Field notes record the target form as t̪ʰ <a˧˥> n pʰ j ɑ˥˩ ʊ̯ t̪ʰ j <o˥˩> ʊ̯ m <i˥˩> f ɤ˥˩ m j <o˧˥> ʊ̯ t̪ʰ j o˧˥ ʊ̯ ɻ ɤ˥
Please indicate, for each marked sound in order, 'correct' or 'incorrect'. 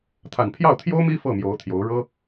incorrect, incorrect, incorrect, correct

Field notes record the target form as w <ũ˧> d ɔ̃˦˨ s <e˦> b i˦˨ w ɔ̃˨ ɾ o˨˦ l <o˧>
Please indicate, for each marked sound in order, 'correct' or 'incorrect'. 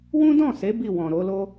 incorrect, incorrect, incorrect

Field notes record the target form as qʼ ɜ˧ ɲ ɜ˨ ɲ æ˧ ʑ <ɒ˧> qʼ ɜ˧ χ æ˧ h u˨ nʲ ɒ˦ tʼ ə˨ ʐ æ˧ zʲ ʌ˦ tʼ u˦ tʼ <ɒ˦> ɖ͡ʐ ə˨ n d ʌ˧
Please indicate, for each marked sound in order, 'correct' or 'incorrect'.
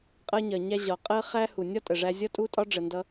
incorrect, correct

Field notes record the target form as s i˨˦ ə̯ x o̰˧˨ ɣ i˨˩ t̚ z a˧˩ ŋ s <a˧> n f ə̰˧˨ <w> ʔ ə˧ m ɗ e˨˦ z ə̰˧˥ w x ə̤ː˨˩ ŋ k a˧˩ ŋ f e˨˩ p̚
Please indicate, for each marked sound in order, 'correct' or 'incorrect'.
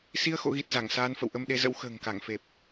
incorrect, correct

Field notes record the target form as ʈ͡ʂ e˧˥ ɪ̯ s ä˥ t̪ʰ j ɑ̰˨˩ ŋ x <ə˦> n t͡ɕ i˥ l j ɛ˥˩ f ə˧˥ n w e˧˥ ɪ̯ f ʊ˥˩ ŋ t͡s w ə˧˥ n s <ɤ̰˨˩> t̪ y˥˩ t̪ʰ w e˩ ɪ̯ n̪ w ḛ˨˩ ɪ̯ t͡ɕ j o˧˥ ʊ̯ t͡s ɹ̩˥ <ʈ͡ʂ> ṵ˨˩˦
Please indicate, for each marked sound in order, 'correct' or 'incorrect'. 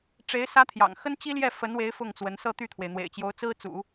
incorrect, incorrect, incorrect

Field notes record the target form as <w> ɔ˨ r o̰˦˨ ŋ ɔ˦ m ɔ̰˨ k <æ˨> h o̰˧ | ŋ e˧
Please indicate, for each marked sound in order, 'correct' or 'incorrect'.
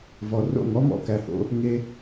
incorrect, correct

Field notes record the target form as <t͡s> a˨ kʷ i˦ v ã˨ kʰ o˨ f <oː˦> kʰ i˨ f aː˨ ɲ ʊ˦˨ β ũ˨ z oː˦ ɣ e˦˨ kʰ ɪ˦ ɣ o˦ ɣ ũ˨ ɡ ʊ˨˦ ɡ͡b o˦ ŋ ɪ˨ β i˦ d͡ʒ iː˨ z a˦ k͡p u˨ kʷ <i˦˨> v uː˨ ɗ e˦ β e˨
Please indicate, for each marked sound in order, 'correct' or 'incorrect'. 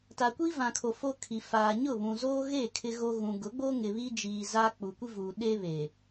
incorrect, incorrect, incorrect

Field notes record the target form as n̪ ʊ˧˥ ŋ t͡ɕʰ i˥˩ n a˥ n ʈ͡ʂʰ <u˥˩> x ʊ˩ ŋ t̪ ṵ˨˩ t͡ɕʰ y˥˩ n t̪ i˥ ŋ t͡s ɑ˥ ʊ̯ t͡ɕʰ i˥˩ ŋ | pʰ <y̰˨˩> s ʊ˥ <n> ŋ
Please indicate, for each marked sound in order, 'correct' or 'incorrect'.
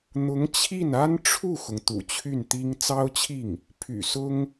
correct, correct, incorrect

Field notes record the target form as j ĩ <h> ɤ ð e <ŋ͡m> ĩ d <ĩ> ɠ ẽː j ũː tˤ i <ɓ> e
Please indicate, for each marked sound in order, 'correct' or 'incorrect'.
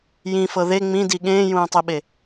incorrect, correct, incorrect, correct

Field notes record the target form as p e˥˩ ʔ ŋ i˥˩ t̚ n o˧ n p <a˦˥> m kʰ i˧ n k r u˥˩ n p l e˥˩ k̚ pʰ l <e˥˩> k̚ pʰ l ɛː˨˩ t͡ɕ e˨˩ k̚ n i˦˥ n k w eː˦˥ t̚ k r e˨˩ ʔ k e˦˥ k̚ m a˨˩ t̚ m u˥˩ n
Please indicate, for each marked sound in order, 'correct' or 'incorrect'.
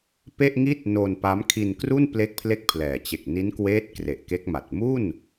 correct, correct

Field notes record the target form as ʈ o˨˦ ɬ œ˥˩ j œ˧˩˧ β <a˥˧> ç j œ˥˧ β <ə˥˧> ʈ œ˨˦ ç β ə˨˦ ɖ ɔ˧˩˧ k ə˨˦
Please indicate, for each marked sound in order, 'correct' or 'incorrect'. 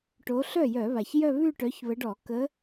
incorrect, incorrect

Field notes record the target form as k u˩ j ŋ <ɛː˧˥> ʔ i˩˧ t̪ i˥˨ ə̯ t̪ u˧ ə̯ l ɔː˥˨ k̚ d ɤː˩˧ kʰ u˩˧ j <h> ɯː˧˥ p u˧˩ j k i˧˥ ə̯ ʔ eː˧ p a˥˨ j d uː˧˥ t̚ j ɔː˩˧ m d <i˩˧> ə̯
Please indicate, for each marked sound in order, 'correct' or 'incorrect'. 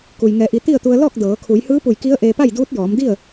incorrect, correct, incorrect

